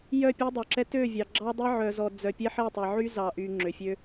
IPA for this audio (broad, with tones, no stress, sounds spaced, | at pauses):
j œ˦˨ pʲ ø˦ dˤ œ˨ ǁ ɛ˦ t ø˦˨ vʲ ɑ˨ ɡ͡ǁ ɑ˦ dˤ ɛ˦ ʕ œ˨ z ɔ˨ d͡z œ˨ pʲ ɛ˦ ħ ɛ˦˨ tˤ ɛ˨ ʕ y˦ z ɑ˨ ʔ y˨ ŋ͡ǁ ø˨ fʲ ø˦